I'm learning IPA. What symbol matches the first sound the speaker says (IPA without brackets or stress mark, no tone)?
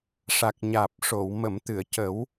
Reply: ʂ